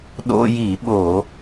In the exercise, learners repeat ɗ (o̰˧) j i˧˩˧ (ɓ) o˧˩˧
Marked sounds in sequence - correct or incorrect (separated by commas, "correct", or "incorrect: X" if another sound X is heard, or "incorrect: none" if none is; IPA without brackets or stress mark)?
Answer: correct, correct